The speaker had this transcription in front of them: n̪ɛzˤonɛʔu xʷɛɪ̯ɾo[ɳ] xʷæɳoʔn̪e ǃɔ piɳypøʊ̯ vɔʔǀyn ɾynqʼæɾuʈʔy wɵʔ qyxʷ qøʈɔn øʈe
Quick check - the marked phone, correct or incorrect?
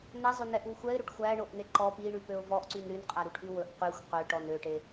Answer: incorrect